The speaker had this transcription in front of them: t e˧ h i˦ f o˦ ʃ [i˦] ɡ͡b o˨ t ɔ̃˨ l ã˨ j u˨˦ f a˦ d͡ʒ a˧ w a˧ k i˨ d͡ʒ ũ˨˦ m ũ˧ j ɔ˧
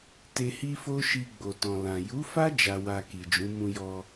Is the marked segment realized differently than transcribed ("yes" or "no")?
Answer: yes